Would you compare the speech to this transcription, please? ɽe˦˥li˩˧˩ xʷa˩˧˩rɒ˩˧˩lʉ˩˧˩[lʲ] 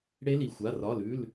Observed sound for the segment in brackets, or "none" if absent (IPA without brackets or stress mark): l